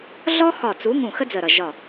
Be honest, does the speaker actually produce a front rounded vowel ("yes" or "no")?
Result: no